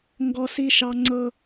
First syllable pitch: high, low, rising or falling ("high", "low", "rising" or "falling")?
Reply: high